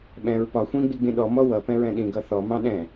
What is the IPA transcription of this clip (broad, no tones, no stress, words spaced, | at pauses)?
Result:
ɓɛ̃ɹ pɒ xʷĩɡ͡bi ɡ͡bĩɗɔmɔ wʌpɛ̃ ɹɛ̃ɗĩɡʌ θɔmɑ̃ ɗɛ̃